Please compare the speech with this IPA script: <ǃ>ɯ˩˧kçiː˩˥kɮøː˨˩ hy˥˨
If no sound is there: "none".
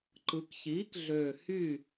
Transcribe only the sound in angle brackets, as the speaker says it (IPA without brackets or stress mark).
ǃ